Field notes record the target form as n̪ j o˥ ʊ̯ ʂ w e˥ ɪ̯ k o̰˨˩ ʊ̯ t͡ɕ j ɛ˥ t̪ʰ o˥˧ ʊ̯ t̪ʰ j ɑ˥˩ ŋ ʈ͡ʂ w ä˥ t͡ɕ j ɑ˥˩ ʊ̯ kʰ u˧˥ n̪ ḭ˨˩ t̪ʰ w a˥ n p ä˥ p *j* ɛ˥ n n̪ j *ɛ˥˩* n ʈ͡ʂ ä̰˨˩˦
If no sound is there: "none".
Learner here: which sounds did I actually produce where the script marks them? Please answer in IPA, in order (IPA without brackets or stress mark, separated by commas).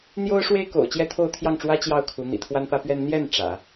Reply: ɥ, ɛ˥˩